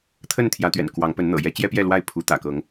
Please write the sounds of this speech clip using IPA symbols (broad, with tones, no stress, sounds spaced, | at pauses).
t̪ʰ ə˥˨ n t̪ʰ j ä˨˦ t̪ ɥ ɛ̰˨˩ n k w ɑ˨˦ ŋ p ə˨˦ n n̪ ɤ̰˨˩ j ɛ˦ t͡ɕ j ɛ˦ p j ɛ˥˨ l w a˥˨ ɪ̯ pʰ u˨˦ t̪ ä̰˨˩ k ɤ˨˦ ŋ